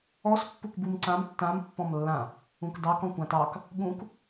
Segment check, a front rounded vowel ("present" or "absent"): absent